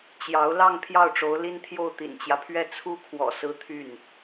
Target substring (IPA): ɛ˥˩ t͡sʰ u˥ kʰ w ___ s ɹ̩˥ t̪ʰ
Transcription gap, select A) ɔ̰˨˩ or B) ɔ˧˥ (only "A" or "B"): A